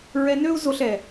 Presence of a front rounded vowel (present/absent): present